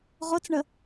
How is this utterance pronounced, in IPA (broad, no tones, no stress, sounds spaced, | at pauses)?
ʁ o t͡s ɳ ə